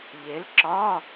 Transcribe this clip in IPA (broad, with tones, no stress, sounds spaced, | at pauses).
ʎ e˨˥ l ǁ ɒ˧˥˧